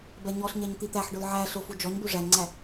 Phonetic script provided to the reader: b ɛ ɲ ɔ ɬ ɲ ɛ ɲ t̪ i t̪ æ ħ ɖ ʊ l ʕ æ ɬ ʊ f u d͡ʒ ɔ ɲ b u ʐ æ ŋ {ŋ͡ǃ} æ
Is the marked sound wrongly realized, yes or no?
yes